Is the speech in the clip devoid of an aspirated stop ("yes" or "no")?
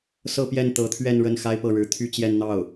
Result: no